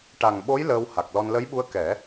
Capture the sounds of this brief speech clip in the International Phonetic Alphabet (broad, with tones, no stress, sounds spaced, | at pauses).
ʈ a˨˩ ŋ ɓ o˧˥ j l əː˧ w h a˨˩ k̚ l ɔ˧ n l ə˧˥ j ɓ u˧˥ ə̯ k ɛ˨˩˦